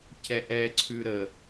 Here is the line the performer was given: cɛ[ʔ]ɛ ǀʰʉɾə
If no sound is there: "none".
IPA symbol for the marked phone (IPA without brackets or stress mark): ʔ